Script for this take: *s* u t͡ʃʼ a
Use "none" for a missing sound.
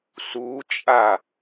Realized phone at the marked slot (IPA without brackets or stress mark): s